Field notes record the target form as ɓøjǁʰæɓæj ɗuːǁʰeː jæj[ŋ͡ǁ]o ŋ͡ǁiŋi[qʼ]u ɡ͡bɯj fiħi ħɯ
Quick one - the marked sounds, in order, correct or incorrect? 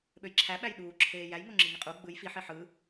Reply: incorrect: ŋ, correct

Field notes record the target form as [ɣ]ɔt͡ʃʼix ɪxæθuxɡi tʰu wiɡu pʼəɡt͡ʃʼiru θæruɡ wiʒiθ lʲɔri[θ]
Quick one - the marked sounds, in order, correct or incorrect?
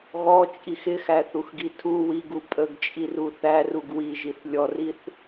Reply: correct, correct

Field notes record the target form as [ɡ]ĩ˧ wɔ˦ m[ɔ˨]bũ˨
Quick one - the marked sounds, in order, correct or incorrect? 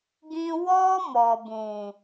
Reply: correct, correct

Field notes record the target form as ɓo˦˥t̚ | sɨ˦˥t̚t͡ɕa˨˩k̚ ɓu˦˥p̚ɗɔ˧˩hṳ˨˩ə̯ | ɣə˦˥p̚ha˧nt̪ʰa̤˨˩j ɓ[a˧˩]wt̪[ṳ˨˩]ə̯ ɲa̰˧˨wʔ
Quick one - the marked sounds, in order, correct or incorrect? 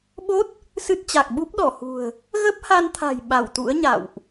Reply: correct, incorrect: ṵ˧˥

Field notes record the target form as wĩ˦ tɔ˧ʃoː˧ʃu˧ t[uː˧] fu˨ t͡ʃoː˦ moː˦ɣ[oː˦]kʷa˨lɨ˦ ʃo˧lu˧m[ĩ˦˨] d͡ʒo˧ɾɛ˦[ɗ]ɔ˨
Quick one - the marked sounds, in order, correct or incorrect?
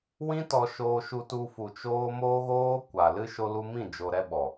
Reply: incorrect: u˧, correct, correct, incorrect: ɓ

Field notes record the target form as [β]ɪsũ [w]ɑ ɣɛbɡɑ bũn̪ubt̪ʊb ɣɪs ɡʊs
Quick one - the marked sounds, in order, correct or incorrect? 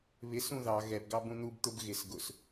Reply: correct, incorrect: ð

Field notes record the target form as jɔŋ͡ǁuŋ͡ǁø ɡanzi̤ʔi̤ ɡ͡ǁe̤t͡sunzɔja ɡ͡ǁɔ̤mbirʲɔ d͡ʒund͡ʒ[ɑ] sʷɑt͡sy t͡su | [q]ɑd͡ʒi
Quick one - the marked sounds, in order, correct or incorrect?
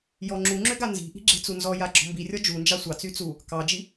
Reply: correct, incorrect: k

